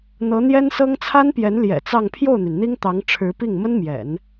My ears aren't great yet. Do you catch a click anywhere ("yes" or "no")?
no